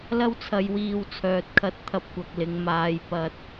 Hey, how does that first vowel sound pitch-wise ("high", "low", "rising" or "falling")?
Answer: high